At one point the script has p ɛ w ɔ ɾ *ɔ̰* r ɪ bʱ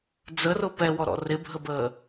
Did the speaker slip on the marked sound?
no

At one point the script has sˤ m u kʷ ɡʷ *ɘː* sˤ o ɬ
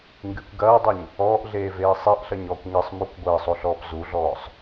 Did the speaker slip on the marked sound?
no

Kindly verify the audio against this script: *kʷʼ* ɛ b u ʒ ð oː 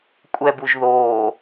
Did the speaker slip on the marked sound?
no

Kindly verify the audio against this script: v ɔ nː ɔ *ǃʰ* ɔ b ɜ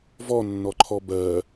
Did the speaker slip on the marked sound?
no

